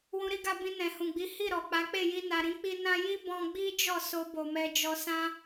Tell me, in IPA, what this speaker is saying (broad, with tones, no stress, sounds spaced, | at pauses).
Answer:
w ũ˧ ɾ i˦ ɡ a˧ b ĩ˧ n ɛ̃˨ h ũ˨ ɡ͡b i˨˦ h i˦˨ ɾ ɔ˨ k͡p a˨˦ k͡p e˦˨ j i˧ n a˨ ɾ ĩ˨˦ k͡p i˧ n ã˦ j i˦ b ɔ̃˧ ɡ͡b i˦ d͡ʒ ɔ˦˨ s o˧ b o˨ m ɛ˧ d͡ʒ ɔ˧ s ã˦